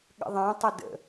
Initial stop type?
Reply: implosive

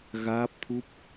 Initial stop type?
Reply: plain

